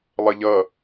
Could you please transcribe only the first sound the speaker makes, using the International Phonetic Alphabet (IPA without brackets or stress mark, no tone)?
lˠ